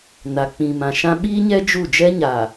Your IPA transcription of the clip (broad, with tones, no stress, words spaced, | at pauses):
na˨k͡pĩ˨mã˨ʃã˦ ɓiː˦ɲɛ˦ d͡ʒu˦˨ d͡ʒɛ˦ɲa˨